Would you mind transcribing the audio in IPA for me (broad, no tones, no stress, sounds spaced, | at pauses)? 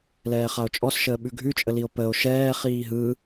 l ɛː χ a o̯ t͡ʃʼ ɔ s ʃ əː ɓ ʉ ɡʱ ʉ t͡ʃʼ ə l i o̯ p ə o̯ ʃ ɛː χ iː ɦ ɯ